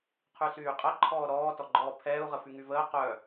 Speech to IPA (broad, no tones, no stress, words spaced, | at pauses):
qʰysyːqʼə ǃʰɔːɾɔː tɔɡ͡ǃɔːpʰɛːu̯ ʁəfyŋyvəː qœ